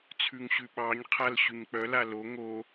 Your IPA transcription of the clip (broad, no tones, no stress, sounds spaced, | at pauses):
t͡sʰ ʉ ŋ ɕ ʉ ɓ ɑ ɲ qʰ a l ɕ ʉ ɲ k͡p œ l a l o ŋ o